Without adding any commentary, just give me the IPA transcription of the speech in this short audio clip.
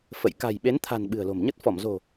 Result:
f ə̰˧˨ j k a̤˨˩ j ɓ e˨˦ n t̪ʰ a̤˨˩ n ɓ ɨ̤˨˩ ə̯ l o̤˨˩ m ɲ ə˦˥ t̚ f ɔ˧˩ m z o̤˨˩

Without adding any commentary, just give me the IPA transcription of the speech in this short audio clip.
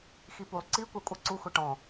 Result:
x i p u lˠ ǀ i kʷ æ kʷʼ ə ǀ u xʷ ɛ ʈ ɔ̃

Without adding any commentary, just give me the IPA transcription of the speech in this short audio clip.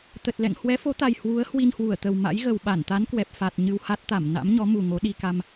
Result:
t̪ ə˨˩ t̚ l ɛ̰˧˨ ŋ h w ɛ˨˦ f o˨˦ t̪ a˨˩ j h w u˨˦ ə̯ h w i˧ n h w u˧˩ ə̯ t̪ ə˨˩ w m a̰˧˥ j ɣ ə˨˩ w ɓ a˧˩ n t̪ a˨˦ n k w ɛ˨˩ p̚ f a˨˩ t̚ ɲ ɨ˧ w h a˦˥ t̚ t̪ a˧˩ m n a̰˧˥ m ɲ ɔ˨˦ m u˨˩ ŋ o˨˦ ɗ i˧ k a˧ m

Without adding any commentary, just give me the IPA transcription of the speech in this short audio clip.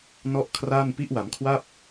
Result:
n ɔ˥˩ ʔ kʰ r aː˥˩ n p i˦˥ ʔ w a˩˦ m kʰ w a˥˩ p̚

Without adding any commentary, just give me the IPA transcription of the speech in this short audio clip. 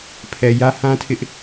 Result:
pʰ ɛ˨ j ä˦ h ã˦ tʰ ɪ˦ ʔ

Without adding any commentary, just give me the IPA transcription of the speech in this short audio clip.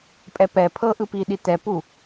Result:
pʼ ɛ p ɛ pʰ ɤ ʔ ɯ p i ɗ i t ɛ p u

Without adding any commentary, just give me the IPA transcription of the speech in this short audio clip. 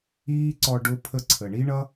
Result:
iː˦ ǀ ɔ˧ ɖ ʊ˦ pʰ ə˧ ǀʰ ə˨ ɳ i˦ ɳ ʌ˦

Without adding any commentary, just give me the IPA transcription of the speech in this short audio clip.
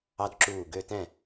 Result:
ɑ˧ d ǁ uː˧˩ ɡ ø˧ t ɛ̃˧˩

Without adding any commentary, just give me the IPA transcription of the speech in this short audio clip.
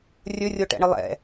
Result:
rʲ ɵ rʲ o ʈ ɛ̰ ɳ ɨ lˠ ɛ̰

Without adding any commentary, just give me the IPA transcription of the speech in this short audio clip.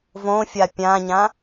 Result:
v õ fʲ a pʲ ã ɲ ã

